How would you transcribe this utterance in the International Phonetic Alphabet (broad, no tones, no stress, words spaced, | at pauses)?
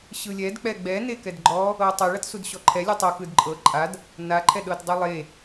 ɕɯlʲɛd k͡pɛɡ͡bɛ nekɛdɡ͡ǃɔ | ɤtˤɯ ɭatsudɕɔǃʰɛ lʲɯtˤo kɯdǃʼɤ ǃʼad | na ǃʰɛɗɤtdˤilˠe